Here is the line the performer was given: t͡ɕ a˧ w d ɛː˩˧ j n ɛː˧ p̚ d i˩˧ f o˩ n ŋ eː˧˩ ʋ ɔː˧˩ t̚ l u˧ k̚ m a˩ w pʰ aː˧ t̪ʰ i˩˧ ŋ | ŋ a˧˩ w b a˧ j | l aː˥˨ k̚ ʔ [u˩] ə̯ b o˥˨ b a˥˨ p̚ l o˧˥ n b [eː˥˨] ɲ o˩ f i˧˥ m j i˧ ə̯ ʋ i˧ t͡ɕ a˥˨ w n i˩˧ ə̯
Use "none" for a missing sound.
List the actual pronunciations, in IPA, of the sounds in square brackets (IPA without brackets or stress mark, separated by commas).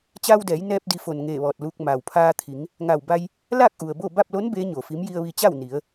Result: u˩, eː˧˥